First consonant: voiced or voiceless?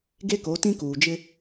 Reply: voiced